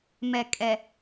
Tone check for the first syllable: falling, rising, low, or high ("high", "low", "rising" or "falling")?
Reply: low